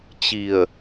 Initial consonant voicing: voiceless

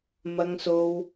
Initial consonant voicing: voiced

